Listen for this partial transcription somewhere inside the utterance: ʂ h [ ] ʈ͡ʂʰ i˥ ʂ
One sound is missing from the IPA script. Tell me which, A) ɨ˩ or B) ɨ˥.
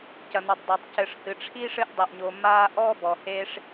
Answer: A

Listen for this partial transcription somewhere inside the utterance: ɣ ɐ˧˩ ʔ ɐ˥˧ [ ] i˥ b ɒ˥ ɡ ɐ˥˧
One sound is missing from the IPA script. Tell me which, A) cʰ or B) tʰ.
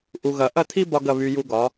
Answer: B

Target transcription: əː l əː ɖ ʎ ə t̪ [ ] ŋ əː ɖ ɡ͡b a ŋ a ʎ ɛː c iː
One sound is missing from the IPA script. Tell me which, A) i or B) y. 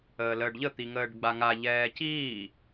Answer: A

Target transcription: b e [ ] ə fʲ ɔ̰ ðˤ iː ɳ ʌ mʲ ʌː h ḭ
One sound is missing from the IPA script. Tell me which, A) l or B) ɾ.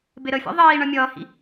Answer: B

